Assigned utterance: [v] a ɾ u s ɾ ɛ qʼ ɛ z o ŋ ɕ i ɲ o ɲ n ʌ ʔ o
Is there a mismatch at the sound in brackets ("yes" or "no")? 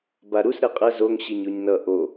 yes